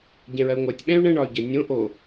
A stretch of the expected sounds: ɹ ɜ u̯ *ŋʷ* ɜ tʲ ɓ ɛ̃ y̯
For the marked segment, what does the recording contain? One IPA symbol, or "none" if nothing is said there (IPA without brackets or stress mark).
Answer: ŋʷ